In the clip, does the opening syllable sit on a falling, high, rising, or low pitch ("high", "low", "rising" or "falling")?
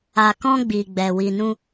low